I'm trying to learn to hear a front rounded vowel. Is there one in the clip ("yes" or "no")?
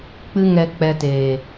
no